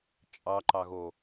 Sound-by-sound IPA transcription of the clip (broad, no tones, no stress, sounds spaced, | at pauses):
t͡ʃʼ ɑ ǃ ɑ ɣ o